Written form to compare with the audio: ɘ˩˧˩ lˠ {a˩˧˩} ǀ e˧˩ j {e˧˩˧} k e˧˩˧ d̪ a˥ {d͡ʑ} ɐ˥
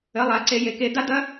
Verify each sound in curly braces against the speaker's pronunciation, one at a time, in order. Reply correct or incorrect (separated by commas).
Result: correct, incorrect, incorrect